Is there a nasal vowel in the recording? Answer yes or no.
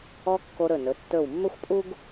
no